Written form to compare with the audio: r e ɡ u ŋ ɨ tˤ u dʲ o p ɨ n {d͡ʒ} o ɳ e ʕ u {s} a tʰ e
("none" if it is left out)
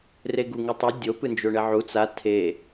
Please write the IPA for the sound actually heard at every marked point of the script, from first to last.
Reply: d͡ʒ, t͡s

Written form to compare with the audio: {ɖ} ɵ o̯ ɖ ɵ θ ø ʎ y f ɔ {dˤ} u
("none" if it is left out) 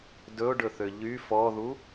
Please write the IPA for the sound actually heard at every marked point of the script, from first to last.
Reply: d, ð

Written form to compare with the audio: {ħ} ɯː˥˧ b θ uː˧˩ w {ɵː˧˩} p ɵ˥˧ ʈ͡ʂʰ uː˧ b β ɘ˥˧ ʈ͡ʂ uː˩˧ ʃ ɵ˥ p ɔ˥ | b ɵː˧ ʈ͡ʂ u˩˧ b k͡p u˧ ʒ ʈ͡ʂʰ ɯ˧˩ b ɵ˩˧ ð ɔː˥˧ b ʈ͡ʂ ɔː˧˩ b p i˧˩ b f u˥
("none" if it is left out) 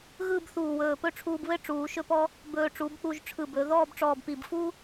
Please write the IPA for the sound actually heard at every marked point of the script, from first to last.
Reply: ɣ, ɵː˧˩

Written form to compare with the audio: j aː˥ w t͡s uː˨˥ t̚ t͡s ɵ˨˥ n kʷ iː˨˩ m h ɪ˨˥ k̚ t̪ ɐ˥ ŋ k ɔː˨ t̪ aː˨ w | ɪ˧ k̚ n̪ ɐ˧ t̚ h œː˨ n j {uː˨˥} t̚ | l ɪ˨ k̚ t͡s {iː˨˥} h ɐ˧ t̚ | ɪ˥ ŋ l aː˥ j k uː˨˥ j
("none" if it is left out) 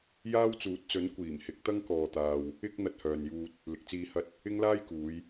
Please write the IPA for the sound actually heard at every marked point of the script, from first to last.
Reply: uː˧, iː˧

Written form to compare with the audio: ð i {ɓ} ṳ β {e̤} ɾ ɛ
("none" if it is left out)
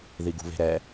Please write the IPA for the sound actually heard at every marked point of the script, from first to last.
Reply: ɡ, e̤

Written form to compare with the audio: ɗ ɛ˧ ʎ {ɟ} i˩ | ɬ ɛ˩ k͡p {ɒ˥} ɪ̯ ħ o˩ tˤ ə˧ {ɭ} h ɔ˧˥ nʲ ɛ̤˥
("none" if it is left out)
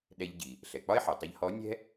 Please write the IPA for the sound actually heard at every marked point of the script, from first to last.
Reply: ɟ, ɒ˥, ʎ

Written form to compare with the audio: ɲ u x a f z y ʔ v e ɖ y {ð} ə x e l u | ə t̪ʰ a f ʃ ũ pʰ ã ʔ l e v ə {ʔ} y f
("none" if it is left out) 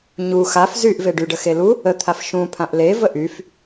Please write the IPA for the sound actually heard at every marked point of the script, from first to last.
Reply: ɖ, ʔ

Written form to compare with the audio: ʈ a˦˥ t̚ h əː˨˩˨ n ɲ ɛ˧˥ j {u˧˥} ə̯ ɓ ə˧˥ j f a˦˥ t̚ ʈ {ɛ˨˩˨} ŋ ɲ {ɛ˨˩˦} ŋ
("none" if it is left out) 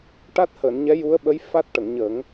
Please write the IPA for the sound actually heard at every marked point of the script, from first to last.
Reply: u˧˥, ə˨˩˨, ə˨˩˦

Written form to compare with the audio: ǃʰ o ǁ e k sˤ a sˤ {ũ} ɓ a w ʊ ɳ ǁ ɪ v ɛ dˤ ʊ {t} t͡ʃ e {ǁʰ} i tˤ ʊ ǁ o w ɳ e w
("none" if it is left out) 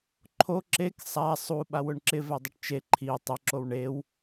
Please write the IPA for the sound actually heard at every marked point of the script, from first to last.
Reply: u, ʈ, ǃʰ

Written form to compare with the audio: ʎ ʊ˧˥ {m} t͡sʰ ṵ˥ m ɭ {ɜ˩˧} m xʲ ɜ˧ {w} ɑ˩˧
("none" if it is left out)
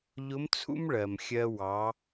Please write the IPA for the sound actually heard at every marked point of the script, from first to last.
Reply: m, ɜ˩, w

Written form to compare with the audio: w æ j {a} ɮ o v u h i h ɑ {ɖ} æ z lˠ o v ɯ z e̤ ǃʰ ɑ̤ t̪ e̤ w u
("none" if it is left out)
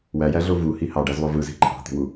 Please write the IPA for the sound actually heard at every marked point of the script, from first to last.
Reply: æ, ɖ

